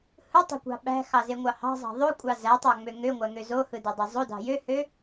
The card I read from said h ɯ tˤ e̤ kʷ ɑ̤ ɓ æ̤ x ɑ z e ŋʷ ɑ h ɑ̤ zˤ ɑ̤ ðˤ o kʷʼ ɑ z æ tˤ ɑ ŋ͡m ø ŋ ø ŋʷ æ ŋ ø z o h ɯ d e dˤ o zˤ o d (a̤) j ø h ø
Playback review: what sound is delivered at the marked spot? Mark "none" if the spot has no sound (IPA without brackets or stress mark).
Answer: ɑ̤